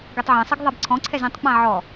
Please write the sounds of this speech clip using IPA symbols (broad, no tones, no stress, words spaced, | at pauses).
ɡɛtˤʕẽsˤiɡ ðˤabǀʰɔ̃ǀʰɛz ẽtˤk͡pã ʕɔ